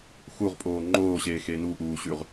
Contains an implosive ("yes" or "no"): no